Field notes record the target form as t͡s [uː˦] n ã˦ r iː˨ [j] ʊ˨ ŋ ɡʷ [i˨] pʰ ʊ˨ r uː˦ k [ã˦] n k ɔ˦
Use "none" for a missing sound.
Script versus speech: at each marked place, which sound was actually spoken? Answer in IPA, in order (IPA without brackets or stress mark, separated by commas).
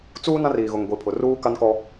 uː˦, ɣ, i˨, a˦